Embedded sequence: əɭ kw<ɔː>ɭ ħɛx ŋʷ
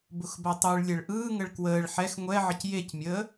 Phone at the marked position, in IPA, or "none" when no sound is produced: əː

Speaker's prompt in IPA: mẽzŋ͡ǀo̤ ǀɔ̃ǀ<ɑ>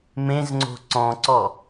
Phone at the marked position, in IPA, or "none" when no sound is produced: ɔ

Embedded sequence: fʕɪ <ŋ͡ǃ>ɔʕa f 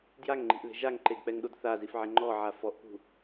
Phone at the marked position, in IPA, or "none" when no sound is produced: ŋ͡ǃ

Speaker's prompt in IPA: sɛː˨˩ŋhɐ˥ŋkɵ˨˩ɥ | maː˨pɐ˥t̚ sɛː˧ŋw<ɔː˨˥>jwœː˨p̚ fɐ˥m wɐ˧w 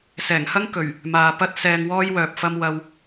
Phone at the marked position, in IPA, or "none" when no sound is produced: ɔː˥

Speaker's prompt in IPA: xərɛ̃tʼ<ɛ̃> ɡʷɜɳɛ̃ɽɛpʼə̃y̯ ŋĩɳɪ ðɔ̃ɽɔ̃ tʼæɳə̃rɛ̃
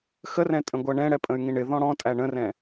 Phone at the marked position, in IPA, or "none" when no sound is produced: ə̃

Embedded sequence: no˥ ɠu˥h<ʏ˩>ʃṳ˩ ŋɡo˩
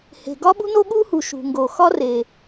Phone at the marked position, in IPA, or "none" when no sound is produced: u˩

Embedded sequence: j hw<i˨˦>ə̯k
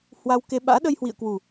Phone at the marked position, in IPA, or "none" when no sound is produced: ḭ˧˨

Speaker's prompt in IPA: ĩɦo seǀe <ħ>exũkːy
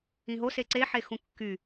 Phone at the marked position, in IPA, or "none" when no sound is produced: ħ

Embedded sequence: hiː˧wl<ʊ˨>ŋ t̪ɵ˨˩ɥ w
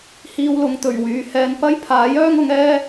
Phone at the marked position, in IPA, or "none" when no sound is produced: ʊ˨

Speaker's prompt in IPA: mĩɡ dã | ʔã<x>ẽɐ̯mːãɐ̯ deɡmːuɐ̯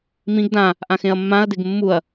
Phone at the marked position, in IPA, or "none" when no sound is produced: x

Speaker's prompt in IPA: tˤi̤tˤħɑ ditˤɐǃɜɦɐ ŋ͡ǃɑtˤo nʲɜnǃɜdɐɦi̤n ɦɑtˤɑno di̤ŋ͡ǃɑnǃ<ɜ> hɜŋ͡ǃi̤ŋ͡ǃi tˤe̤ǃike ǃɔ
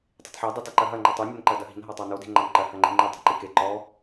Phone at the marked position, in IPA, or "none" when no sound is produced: ɜ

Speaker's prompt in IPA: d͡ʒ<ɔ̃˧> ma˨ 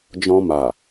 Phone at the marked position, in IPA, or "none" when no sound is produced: ɔ̃˧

